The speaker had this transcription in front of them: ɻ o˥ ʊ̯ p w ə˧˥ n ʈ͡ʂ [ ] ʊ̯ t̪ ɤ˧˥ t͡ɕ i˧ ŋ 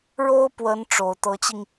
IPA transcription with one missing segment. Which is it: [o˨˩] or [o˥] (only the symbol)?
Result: o˨˩